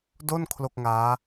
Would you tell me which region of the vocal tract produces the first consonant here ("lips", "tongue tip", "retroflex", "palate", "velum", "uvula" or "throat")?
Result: tongue tip